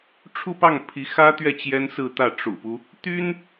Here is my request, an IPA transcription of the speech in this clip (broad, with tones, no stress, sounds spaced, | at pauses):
ʈ͡ʂʰ u˥˧ p ɑ˥˩ ŋ pʰ i˧˥ x ä˥ t̪ ɥ ɛ˥˩ t͡ɕ j ɛ˥ n s ɹ̩˥˧ t̪ ä˥˩ ʈ͡ʂ ṵ˨˩ p u˦ | t̪ y˥ n